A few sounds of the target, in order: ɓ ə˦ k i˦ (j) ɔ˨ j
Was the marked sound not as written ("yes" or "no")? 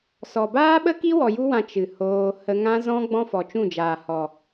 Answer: yes